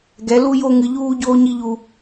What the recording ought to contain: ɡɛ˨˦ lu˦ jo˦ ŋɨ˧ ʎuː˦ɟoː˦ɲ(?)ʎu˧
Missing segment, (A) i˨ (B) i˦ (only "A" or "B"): B